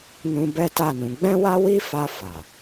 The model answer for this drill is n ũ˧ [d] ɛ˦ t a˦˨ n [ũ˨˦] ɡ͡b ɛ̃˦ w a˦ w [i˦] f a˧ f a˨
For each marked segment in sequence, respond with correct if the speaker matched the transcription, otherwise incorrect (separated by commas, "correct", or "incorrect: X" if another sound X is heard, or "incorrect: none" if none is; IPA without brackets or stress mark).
incorrect: b, correct, correct